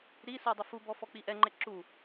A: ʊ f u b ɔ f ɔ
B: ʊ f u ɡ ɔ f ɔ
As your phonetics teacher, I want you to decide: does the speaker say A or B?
A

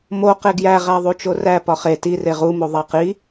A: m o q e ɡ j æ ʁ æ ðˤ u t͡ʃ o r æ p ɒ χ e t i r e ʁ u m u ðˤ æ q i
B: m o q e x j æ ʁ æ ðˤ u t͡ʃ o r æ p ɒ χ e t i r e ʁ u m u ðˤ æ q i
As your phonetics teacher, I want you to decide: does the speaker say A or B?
A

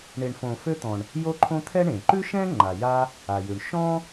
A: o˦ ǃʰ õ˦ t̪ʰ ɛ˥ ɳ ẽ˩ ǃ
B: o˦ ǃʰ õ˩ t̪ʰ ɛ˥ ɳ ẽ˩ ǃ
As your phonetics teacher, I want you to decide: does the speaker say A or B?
A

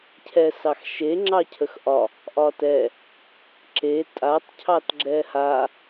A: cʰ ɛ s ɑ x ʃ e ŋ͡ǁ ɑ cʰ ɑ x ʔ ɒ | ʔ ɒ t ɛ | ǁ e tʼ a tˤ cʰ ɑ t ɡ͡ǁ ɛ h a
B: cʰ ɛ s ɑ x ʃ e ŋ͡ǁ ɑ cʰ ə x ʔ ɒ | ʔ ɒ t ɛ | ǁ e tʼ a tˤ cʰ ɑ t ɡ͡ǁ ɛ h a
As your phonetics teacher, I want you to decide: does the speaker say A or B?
B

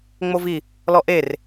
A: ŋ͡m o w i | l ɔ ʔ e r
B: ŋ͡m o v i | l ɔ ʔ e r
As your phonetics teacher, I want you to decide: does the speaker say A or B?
B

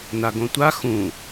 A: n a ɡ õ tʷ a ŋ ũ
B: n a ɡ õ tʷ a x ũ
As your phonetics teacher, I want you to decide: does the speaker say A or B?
B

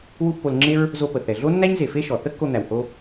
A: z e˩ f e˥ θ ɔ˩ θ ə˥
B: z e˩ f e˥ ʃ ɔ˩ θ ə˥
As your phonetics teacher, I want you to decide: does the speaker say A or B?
B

